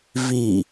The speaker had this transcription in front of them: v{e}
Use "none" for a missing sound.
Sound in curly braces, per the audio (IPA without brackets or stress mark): i